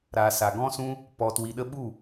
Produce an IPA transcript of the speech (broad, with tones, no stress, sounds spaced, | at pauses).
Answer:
ɾ a˨ s a˨ ɡ ɔ̃˦ s ũ˦ | p ɔ˨ t w i˨ ɗ ə˧ ɓ u˦˨